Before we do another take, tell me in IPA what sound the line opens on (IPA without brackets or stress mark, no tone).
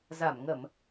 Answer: z